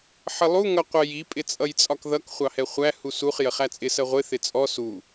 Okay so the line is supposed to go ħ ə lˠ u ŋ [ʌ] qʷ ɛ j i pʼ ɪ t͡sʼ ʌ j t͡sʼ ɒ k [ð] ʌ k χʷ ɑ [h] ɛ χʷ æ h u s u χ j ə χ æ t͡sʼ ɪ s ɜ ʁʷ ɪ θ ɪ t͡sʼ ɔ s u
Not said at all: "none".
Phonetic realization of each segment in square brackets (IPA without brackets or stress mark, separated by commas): ʌ, ð, h